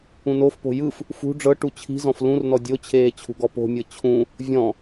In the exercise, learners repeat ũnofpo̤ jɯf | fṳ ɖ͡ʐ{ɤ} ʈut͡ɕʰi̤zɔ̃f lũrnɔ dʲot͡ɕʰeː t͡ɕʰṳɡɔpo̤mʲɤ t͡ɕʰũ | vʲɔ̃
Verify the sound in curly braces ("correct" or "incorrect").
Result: correct